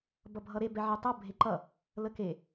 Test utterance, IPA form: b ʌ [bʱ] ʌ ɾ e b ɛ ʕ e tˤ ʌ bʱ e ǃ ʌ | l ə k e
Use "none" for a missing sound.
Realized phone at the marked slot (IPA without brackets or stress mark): bʱ